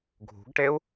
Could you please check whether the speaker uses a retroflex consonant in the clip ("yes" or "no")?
yes